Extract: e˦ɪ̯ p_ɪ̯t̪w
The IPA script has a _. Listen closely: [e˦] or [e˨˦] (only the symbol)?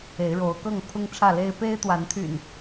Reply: e˦